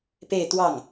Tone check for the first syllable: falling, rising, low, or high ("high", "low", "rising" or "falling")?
falling